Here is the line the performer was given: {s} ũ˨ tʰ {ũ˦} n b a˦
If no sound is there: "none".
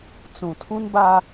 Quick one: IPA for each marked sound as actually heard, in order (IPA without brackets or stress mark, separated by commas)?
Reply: t͡s, ũ˦